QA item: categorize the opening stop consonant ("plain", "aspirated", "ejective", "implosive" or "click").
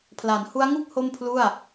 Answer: aspirated